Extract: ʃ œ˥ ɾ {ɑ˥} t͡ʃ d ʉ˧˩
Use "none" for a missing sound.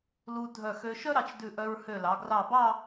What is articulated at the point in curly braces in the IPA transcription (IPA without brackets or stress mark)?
ɑ˧